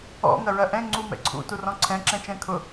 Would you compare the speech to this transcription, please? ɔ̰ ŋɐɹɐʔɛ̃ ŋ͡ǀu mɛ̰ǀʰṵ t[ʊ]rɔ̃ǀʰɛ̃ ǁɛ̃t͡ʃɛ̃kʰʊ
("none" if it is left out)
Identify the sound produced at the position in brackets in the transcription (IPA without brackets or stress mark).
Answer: u